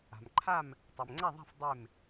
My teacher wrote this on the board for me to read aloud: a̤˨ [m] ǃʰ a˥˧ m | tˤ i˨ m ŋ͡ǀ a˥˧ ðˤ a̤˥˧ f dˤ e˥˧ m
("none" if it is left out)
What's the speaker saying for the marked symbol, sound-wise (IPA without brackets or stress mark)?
m